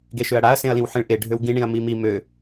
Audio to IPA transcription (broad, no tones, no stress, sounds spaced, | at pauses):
ɡ e ʃ ø ɐ̯ ɽ a ɐ̯ s ẽ ɐ̯ l ĩ w ħ ẽ ɭ ʔ e ɖʱ ø w ɡ ĩ ɳ ĩ ɐ̯ m i m i m ø